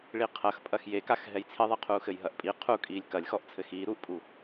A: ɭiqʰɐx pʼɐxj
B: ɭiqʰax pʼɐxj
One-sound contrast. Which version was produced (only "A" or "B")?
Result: A